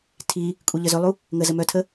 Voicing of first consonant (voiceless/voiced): voiceless